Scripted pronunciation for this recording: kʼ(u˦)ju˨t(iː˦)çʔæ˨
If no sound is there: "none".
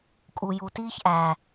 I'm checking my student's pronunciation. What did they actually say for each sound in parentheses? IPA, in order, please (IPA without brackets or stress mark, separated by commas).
u˨, iː˦